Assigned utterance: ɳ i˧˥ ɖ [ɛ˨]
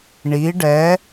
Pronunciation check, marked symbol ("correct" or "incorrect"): incorrect